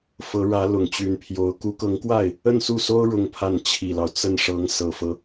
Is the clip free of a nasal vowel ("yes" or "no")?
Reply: yes